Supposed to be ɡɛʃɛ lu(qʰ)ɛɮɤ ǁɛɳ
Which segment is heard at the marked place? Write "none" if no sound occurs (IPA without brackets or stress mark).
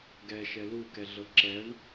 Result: k